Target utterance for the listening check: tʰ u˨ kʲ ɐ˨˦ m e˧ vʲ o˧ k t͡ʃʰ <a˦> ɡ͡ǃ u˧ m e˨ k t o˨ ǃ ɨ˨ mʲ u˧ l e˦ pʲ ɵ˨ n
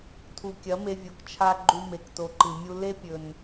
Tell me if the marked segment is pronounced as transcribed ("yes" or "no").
yes